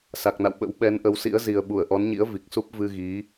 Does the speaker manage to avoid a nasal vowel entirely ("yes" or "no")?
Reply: yes